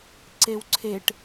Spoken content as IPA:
ǀ e w ǀʰ e ʈ

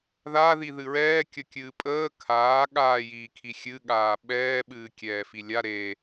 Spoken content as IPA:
ð a ð i ð ɨ ɹ ɛː kʲ ə kʲ ɨː pʼ əː kʰ aː ɠ aː j iː kʰ i xʲ ɨ ɠ aː ɓ ɛː ɓ ɨː kʲ ɛː f i lʲ a ɾ e

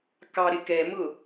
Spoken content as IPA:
k ɑ ɾ ɪ k ɛ m ʊ

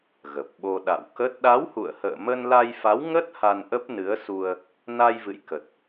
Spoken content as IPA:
ɣ ə˨˩ p̚ ɓ o˧ ɗ a̰˧˨ w k ə˦˥ t̚ ɗ a˨˦ w h ṵ˧˨ ə̯ h ə̰ː˧˨ m ə˧ n l a˧ j f a˨˦ w ŋ ə˦˥ t̚ h a˧ n ʔ ə˦˥ p̚ n ɨ˨˦ ə̯ s u˧ ə̯ | n a˧ j v ɨ̰˧˨ j k ə˨˩ t̚

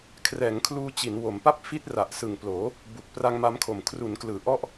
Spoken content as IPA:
kʰ r ɛː˩˦ ŋ kʰ l uː˧ t͡ɕ i˩˦ n w o˩˦ m p a˥˩ p̚ f i˦˥ t̚ r a˨˩ ʔ s ɯ˨˩ ŋ p l oː˩˦ | b u˨˩ k̚ p r a˧ ŋ m a˦˥ m kʰ o˨˩ m kʰ r u˩˦ n k l ɯː˩˦ ʔ ɔ˦˥ ʔ

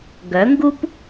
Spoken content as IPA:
ɡ œ˩˥ ŋ ɡ u˥ p

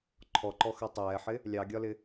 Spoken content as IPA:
ǃʰ ɔ ǃ ɔ x ɜ tˤ ɛː ħ ɪ | lʲ ɑ ɡʲ ɒ l ɪ

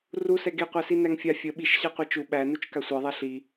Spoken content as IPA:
r u s ɛ ɡ e qʷ æ s i n æ ŋ fʲ a fʲ ə ɓ i ʃ ɕ a qʷ ɛ t͡ʃ u ɓ æ n u t͡ʃ k a sʷ e ðˤ ɛ ɬ i

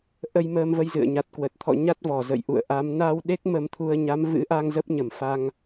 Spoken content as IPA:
ʔ ə˧ j m əː˧ m v ə˧ j z ɨ̰˧˨ ə̯ ɲ a˨˩ t̚ k w ə˨˩ t̚ t̪ʰ ɔ̰˧˨ ɲ a˦˥ t̚ v ɔ˧˩ z ə̰˧˨ j ʔ ṵ˧˨ ə̯ ʔ a˨˦ m n a˧ w ɗ e˦˥ k̚ m ə˧ m t̪ʰ u˧ ə̯ ɲ a˨˦ m v ɨ̰˧˥ ʔ a˧ ŋ z ə˦˥ p̚ ɲ ə˧˩ m f a˧ ŋ

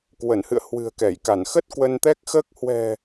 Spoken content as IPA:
k w ə˧˩ n h ɨ̰˧˨ ə̯ h w ɨ̤˨˩ ə̯ k ɛ˧˩ j k a˧˩ n x ə˦˥ t̚ k w ə˧ n t̪ ɛ˦˥ k̚ x əː˦˥ k̚ h w ɛ̤˨˩

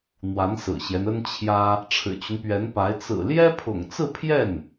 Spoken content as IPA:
n̪ w a˧˥ n s ɹ̩˨˩ ɕ j ɛ˦ n ə˥ n t͡ɕʰ j ä˥ | ʈ͡ʂʰ ɻ̩˨˩ t͡ɕ y˦ n p ɥ ɛ˧˥ n p a˧˥ ɪ̯ t͡s ɹ̩˨˩ l j ɛ˥ pʰ ʊ̰˨˩ ŋ t͡s ɹ̩˥˧ pʰ j ɛ˥˩ n

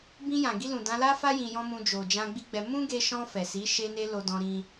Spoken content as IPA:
b ĩ˧ j ã˨ ɡ i˧ l ũ˨ d ã˨˦ l a˦ f a˦ j ĩ˧ j ɔ̃˦ m ũ˧ d͡ʒ o˨ d͡ʒ ã˧ ɡ͡b i˦ ɡ͡b ɛ˧ m ũ˦ ɡ e˧ ʃ ɔ̃˧ f ɛ˨ s i˨˦ ʃ e˦ n e˦ l o˧ d ɔ̃˧ ɾ ĩ˧

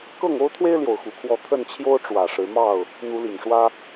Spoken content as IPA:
k ɤ˥˨ ŋ o˦ ʊ̯ t̪ʰ w e˦ ɪ̯ l j o˨˩ ʊ̯ x u˨˦ kʰ w ɔ˥˨ t̪ʰ ə˥˨ n t͡ɕʰ j o˦ ʊ̯ ʈ͡ʂ w ä˨˩ ʂ ɻ̩˨˦ m ɑ˥˨ ʊ̯ | n̪ u˨˦ l i˨˩ ŋ ʂ w ä˦

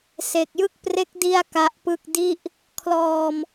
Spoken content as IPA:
s e˨˩ k̚ j ɯ˥˩ k̚ p r e˦˥ k̚ d i˥˩ a̯ k a˦˥ ʔ p ɯ˥˩ k̚ d i˥˩ ʔ | kʰ l ɔː˧ m

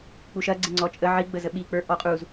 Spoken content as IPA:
k͡p u ʃ ɐ ɡ͡ǀ ɪ ŋ͡ǀ ɔ t͡ʃʼ ə ʕ i ɡ͡b ə z ə ɓ i k͡p ə˞ ʔ ɔ qʼ u z

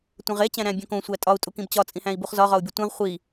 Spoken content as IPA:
tʷ ẽ ʁ e t͡ɕ æ̃ ɾ æ̃ bʲ õ k õ sʷ æ tʼ ɒ u̯ tʼ u k ĩ b t͡ɕ ɒ t͡sʼ ĩ h æ̃ i̯ b u χ z ɒ ʁ ɒ u̯ bʲ u tʷ ẽ ʁ χʷ i

